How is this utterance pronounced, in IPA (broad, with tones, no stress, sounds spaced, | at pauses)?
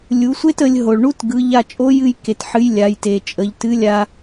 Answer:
lʲ u˩˧ sʷ e˥ t ə˩˧ lʲ ɦ o˩ ɭ ɳ u˥ t ɡ ɯ˩˧ ʎ a˧ t͡ʃʼ o˧˥ j ɨ˧ j k e˩˧ t ħ ɨ˧˥ j lʲ a˩˧ j t e˩ t͡ʃʼ ə˩˧ ʎ t ɨ˧˥ lʲ a˧